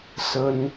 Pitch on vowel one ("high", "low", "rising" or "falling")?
high